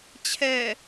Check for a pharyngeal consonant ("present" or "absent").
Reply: absent